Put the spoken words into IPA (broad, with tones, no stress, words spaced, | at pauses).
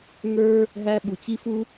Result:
ŋə˞˥ | ɦæ˥ ɓu˩t͡ɕi˥fu˥